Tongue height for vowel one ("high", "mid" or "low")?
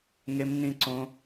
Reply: mid